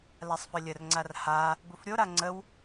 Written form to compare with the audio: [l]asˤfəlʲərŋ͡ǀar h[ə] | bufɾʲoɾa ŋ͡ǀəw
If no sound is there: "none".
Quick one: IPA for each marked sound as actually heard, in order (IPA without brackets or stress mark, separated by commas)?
l, a